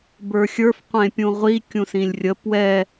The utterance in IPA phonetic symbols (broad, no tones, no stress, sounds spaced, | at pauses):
b ə˞ xʲ ə˞ f qʷ ẽ pʲ ũ ʁʷ i kʲ ũ s ĩ lʲ rʲ ə p w ɛ